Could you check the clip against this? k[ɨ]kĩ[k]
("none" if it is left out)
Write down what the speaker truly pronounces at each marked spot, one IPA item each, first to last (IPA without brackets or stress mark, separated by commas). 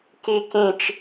i, t͡ʃ